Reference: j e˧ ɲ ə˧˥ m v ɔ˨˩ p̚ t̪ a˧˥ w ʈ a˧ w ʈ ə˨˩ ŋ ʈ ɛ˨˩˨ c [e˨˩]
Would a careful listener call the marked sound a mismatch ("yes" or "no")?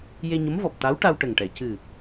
yes